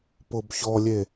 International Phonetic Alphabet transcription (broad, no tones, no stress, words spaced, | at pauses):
pʊbçɔlʲe